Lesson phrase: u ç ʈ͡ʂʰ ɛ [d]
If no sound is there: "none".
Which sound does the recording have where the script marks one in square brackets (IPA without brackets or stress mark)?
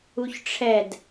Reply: d